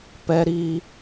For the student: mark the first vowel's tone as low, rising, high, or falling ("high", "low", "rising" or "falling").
high